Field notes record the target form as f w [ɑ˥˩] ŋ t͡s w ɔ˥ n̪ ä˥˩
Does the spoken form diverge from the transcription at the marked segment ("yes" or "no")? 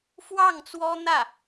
no